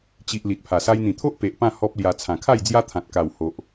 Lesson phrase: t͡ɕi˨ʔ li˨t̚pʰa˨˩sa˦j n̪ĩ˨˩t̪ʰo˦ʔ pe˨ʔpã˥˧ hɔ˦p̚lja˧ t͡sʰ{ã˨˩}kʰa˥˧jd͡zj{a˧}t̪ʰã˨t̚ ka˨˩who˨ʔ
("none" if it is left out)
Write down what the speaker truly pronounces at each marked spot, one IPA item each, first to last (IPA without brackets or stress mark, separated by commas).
ã˨˩, a˦